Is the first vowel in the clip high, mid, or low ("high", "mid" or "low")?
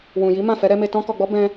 high